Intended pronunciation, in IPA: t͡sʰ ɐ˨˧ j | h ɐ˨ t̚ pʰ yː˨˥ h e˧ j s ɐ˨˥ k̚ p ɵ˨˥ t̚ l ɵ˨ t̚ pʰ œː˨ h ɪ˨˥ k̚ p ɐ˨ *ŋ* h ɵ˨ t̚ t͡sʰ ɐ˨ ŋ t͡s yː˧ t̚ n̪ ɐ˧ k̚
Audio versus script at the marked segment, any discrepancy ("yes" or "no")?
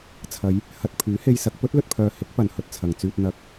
yes